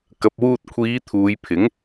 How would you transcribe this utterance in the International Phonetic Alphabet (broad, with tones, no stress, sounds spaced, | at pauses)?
k ɐ˨ p̚ w uː˧ t̚ kʷʰ iː˨˧ t̪ʰ uː˨˧ j pʰ ɪ˨˥ ŋ